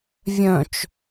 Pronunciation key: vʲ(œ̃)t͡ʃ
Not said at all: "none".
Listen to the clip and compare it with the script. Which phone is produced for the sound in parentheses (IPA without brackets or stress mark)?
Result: œ̃